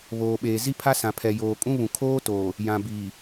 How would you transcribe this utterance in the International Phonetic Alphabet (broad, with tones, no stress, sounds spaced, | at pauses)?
β oː˨ ɓ eː˨ z i˦ pʰ a˦ s ã˨ pʰ ɛ˨ j oː˨ kʼ ũ˦ β ũ˨ kʰ oː˦ t oː˨ | j ã˨ b iː˨